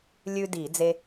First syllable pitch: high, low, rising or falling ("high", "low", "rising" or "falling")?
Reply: high